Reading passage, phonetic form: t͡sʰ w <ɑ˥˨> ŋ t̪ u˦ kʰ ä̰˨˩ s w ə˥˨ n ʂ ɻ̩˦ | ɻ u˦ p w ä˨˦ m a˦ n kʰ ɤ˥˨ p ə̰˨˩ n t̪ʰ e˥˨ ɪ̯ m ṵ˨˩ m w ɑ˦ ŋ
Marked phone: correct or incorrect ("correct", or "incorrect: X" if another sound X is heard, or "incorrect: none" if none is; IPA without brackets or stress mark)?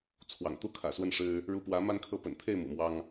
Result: incorrect: ɑ̰˨˩